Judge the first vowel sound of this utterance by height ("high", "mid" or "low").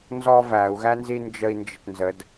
mid